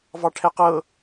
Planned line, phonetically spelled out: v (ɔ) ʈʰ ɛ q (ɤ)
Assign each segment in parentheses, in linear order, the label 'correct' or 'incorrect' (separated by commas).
incorrect, correct